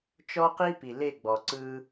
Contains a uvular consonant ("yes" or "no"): yes